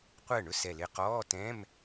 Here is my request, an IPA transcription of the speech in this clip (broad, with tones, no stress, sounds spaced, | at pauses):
qʷ ɜ˥˩ ɳ ɵ˥˩ s ɛ˧˩ l ɪ˧˩ q ɔː˧˥˧ t ɛ̃ː˧˥˧ m